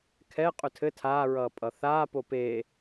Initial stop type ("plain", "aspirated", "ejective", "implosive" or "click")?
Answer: aspirated